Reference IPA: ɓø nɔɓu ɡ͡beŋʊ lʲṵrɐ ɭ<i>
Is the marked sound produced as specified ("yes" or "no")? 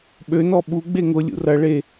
no